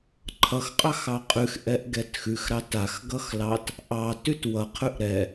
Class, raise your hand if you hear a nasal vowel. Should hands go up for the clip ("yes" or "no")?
no